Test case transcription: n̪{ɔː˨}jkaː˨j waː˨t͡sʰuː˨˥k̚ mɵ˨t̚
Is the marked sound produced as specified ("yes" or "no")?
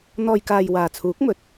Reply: yes